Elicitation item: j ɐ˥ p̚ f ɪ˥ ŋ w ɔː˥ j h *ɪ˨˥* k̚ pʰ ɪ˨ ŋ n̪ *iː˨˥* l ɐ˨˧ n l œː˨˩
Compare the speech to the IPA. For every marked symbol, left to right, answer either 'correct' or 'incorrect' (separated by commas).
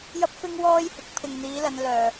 correct, correct